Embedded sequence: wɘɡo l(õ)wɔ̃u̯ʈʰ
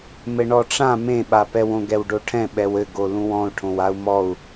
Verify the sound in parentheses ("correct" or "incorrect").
incorrect